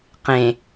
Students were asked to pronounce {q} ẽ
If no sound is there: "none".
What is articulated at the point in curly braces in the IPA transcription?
q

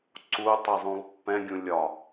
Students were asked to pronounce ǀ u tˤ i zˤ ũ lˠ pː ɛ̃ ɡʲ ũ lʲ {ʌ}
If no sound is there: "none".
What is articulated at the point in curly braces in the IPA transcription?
ɒ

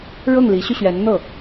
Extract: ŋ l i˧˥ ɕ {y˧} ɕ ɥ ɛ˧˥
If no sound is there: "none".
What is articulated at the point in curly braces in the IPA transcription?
y˧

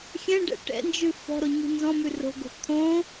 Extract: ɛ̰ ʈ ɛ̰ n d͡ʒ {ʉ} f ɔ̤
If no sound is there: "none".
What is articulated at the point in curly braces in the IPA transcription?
ʉ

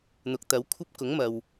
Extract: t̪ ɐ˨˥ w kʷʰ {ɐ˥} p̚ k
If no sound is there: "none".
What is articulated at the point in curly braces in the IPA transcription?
ɐ˥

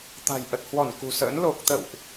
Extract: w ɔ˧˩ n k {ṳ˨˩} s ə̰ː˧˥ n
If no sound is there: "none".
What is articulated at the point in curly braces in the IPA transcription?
ṳ˨˩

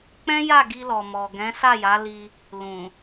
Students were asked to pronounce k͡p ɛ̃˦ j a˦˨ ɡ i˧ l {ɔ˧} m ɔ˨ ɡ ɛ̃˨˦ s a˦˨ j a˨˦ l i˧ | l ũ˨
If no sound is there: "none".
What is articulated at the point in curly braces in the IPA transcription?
ɔ˨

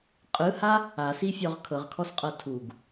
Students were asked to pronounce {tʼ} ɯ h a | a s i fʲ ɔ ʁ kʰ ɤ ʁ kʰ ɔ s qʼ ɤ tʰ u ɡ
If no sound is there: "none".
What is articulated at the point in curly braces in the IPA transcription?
qʼ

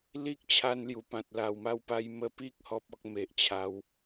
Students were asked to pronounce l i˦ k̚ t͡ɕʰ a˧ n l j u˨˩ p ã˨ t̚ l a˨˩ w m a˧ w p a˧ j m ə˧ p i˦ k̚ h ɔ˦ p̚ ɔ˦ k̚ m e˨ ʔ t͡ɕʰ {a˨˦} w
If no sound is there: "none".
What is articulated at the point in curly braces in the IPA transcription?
a˨˦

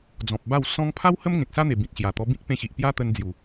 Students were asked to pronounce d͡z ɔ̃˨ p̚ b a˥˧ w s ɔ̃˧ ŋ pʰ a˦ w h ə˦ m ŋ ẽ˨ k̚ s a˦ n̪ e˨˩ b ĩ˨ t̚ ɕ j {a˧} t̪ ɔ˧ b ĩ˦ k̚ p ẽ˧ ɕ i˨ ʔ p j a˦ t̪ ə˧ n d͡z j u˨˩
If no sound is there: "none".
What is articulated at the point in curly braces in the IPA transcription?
a˨˩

